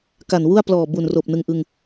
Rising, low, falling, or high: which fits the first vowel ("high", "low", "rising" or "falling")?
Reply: low